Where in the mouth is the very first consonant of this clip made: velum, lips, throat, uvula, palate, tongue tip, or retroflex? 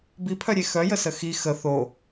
lips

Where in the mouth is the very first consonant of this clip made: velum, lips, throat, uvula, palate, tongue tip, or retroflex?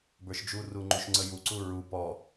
lips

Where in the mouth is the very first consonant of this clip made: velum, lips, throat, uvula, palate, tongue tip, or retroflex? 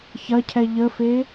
palate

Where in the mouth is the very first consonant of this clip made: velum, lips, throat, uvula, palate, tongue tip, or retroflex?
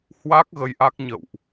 throat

